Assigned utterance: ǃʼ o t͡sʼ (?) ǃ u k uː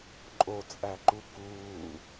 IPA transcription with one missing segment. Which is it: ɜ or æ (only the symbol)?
æ